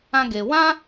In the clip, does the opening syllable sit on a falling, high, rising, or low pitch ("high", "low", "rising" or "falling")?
high